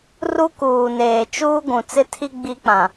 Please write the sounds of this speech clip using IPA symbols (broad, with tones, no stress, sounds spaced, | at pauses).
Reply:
r u˦ k uː˨ n eː˨ t͡ʃ uː˦ ɡʷ ũ˨ t͡s ɪ˦ tʰ i˦ ɡ͡b i˦ k͡p ã˨